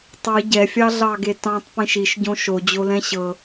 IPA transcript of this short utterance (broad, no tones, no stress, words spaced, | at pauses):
tˤi ɟɛfʲɑɮɑɡe tɑ̃tˤpĩʃ iʃɟõ ʃod͡ʑolɛ̃ ɕɤ